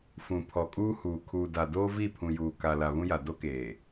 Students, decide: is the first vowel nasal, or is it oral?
nasal